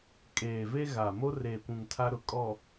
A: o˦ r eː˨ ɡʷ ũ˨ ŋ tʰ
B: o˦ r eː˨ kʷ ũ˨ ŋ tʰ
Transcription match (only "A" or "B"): B